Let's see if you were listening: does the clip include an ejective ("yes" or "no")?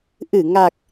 no